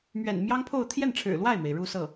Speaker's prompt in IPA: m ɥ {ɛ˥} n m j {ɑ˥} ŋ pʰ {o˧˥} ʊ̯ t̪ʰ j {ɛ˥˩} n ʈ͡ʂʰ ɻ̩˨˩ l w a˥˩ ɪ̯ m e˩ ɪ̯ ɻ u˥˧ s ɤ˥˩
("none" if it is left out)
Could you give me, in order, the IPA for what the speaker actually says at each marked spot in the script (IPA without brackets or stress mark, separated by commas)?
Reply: ɛ̰˨˩, ɑ˥, o˥˧, ɛ˥˩